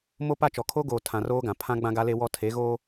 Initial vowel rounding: rounded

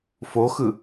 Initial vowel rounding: rounded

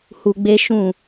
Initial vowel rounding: rounded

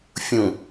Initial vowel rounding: rounded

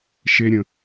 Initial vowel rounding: unrounded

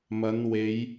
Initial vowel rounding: unrounded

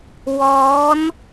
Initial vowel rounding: rounded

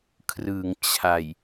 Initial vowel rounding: unrounded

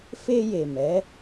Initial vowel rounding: unrounded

